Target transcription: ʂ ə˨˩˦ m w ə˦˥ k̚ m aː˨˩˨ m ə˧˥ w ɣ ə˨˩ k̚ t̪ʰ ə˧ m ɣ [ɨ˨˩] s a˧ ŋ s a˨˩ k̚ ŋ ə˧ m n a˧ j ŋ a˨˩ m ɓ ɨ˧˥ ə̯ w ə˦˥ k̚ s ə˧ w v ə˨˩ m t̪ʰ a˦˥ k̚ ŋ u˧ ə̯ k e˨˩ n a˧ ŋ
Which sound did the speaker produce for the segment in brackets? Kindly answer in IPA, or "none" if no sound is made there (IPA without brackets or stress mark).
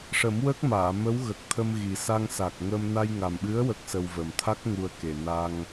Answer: i˨˩